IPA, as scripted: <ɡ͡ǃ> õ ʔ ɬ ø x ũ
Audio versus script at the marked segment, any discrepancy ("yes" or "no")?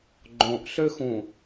no